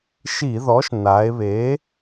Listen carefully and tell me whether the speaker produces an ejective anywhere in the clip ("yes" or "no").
no